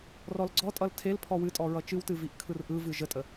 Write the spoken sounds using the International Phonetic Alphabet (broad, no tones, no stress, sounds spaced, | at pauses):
r ɔ l ɡ͡ǀ ɔ tʼ ʌ l tʰ e l pʰ ɔ w ɨ tʼ ɔ ɹ ʌ t͡ʃ ɨ w t ɨ v i ʔ kʰ ɯ r ʔ ɯ v ɨ ʒ ə tʼ ə